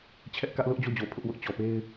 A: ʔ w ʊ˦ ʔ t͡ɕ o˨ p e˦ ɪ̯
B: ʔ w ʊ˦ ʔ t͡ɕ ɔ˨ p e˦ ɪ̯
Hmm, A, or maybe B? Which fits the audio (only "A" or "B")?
B